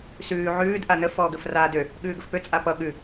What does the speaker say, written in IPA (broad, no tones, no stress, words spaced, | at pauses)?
sʉː ʕʉːd ʔanə fɔːɡəf raːdø | ɠʉːɡəfpø t͡sʼapʌ ɠʉ